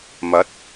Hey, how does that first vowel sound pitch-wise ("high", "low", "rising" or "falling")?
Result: rising